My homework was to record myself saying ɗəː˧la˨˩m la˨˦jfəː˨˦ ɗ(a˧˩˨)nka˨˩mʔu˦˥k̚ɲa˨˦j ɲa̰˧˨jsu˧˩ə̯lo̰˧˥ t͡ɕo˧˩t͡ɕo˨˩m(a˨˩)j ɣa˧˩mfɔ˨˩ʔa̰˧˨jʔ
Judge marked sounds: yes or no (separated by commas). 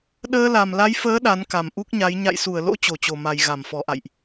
no, yes